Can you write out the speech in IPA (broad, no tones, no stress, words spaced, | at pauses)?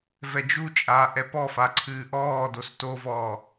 vɛd͡ʒut͡ʃʼaː ʔɛpɔfa ǀʰɨːʔɔː dostovɔː